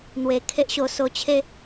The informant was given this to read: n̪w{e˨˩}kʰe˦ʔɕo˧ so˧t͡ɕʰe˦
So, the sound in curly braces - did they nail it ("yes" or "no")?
yes